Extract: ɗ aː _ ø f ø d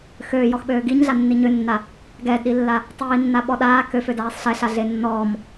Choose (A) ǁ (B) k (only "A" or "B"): B